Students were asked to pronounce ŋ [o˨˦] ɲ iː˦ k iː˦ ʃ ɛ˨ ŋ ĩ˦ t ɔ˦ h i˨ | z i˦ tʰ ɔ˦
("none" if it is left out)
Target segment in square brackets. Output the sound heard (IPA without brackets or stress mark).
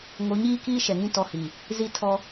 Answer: o˨˦